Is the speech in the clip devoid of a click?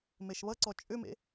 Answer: no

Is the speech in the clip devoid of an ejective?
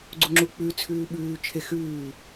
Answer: yes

